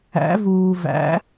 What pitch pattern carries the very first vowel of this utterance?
rising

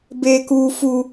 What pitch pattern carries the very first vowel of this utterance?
high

